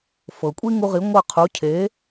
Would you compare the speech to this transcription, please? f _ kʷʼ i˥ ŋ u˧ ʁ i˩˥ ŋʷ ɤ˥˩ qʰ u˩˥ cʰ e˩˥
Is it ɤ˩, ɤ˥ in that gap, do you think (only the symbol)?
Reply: ɤ˩